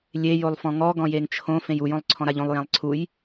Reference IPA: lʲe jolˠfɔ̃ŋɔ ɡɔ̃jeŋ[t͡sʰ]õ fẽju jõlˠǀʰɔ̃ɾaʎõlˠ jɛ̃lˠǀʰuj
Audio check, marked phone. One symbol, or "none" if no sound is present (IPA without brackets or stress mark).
t͡ʃʰ